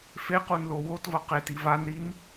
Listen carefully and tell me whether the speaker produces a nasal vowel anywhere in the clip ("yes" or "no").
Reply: no